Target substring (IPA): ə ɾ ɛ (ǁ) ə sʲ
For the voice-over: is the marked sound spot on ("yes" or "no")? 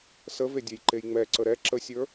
yes